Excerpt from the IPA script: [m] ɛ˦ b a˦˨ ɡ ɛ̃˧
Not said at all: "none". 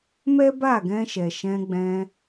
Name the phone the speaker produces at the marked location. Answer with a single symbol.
m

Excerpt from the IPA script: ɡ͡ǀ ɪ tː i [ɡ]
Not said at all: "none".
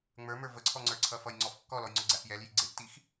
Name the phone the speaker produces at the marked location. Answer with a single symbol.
x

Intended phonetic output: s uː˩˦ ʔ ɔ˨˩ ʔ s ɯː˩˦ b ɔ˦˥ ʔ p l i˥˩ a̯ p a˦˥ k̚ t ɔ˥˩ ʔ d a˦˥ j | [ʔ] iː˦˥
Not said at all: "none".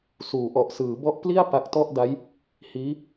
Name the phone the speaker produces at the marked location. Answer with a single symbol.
h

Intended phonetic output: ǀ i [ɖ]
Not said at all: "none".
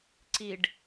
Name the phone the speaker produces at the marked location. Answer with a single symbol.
ɖ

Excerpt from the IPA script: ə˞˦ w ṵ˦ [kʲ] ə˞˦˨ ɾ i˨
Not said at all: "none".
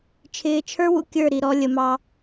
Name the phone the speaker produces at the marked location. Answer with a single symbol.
kʲ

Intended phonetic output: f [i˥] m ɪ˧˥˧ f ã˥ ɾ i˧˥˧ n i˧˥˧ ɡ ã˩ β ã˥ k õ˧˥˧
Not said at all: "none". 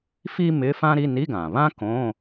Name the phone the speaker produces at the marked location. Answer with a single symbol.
i˥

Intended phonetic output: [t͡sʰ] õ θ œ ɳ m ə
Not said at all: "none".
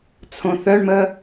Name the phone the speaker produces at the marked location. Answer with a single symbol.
t͡sʰ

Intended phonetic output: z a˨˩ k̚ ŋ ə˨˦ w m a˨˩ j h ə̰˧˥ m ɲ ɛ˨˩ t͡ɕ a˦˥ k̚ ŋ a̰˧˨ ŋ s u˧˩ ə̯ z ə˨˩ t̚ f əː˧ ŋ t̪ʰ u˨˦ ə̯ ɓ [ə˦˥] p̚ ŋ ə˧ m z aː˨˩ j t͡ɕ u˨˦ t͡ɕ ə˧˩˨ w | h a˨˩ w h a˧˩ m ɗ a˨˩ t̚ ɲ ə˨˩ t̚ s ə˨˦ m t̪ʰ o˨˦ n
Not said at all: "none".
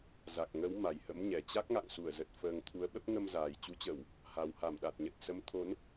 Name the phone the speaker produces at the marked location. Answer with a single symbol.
ə˦˥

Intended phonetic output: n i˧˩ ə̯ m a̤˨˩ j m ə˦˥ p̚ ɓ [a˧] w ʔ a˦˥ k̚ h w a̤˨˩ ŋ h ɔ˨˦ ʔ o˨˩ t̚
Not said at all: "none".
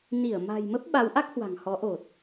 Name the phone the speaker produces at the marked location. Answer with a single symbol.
a˨˦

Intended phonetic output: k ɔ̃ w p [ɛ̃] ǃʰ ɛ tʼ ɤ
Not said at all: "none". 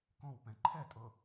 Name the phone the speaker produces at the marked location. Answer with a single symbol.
ɛ̃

